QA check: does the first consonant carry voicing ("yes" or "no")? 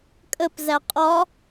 no